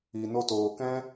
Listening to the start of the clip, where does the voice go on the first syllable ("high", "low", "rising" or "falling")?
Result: low